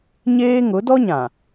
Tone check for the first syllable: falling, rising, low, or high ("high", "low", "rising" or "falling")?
high